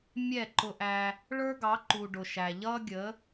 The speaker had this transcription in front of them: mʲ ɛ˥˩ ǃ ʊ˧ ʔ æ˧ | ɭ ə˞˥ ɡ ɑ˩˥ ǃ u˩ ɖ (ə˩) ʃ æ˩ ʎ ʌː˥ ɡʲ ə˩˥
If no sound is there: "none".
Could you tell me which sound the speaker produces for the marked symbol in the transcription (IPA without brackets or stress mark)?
ʊ˩